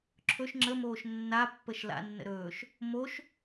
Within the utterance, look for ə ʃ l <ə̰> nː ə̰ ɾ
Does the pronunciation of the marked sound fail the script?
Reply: yes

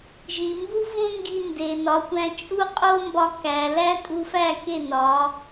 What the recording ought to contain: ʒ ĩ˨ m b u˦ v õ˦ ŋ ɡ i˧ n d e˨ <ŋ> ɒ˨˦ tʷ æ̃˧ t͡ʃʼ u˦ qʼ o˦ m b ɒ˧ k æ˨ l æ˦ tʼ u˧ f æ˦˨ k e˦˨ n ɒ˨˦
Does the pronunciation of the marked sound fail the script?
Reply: yes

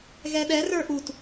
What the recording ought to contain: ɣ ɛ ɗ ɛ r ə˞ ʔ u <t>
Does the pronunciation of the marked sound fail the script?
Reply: no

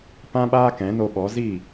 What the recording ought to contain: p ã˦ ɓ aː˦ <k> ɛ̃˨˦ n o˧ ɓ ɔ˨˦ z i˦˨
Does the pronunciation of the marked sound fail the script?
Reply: no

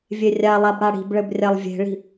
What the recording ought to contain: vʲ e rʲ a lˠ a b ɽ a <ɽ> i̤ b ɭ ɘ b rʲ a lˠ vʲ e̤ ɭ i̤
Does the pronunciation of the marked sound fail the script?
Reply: no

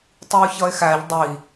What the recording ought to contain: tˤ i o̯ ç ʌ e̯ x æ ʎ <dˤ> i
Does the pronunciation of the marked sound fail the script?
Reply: no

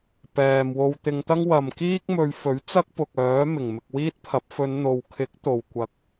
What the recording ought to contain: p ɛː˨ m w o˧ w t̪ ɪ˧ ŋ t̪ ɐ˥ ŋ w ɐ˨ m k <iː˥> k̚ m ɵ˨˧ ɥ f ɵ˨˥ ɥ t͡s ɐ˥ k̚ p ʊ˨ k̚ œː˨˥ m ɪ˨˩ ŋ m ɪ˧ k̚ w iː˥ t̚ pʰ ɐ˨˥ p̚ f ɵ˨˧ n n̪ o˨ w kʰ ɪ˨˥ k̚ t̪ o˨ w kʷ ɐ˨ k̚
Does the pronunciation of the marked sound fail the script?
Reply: no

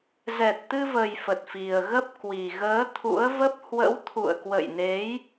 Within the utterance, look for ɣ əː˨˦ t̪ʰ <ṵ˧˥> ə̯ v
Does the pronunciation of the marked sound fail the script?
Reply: no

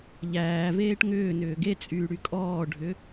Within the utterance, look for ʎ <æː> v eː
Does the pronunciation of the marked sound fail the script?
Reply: no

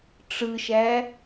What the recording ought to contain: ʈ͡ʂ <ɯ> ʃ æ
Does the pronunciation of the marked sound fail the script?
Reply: no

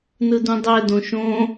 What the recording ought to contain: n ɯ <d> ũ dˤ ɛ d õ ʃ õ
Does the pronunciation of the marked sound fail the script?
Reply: no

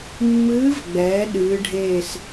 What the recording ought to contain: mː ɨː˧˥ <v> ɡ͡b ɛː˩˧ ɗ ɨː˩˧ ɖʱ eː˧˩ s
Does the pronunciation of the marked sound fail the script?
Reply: no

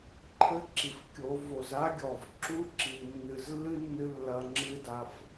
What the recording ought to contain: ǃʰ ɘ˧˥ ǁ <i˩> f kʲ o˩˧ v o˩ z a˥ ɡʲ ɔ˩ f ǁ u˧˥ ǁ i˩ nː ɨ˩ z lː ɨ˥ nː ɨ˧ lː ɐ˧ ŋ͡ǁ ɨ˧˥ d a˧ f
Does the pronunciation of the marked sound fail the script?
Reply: no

